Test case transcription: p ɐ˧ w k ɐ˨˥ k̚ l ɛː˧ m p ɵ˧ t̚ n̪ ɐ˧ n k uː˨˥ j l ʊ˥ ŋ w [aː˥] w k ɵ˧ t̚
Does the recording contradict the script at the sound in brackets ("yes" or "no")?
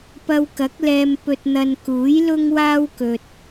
no